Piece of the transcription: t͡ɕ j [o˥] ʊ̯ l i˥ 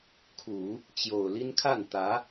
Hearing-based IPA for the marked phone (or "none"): o˨˩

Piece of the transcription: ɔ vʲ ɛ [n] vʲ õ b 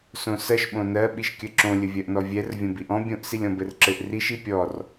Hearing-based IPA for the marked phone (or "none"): r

